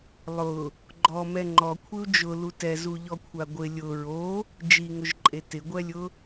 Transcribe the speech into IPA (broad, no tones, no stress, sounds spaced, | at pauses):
lˠ ʊ | ɡ͡ǃ ɔ m ɛ ŋ͡ǃ ɔ kʷʰ ɪ u̯ d͡ʒ ʊ l u t ɛ z u ʎ ɔ kʷʰ a ɡʷ ɪ lʲ ʊ ɹ o | d͡ʒ i ŋ ʊ ʒ ǃʼ e t ɪ ɡʷ ɛ lʲ ʊ